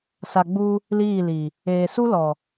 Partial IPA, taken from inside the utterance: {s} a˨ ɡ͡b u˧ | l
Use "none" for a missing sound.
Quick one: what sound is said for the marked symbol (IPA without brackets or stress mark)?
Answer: s